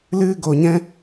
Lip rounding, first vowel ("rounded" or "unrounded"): unrounded